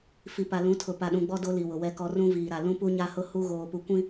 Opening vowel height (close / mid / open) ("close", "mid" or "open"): close